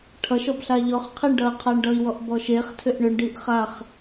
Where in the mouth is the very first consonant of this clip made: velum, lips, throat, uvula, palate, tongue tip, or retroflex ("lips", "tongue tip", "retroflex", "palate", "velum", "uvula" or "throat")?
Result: retroflex